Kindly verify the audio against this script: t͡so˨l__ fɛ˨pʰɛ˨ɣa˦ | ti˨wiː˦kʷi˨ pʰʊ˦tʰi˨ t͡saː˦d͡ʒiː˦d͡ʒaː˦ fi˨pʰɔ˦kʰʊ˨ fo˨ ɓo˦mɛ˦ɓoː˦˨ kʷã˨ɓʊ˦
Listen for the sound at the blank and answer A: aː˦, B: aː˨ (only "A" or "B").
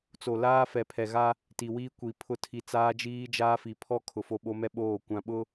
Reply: A